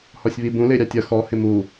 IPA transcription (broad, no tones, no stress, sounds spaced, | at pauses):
h ɔ sʲ β i b ũ l ɪː ɾʲ ɑ tʲ ʌ x ɔ h ɪ m u